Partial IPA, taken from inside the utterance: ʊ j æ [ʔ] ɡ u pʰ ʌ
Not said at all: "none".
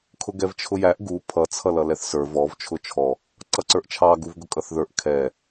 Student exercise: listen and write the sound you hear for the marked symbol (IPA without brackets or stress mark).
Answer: ʔ